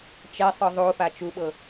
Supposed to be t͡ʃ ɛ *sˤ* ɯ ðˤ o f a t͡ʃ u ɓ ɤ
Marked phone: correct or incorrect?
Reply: correct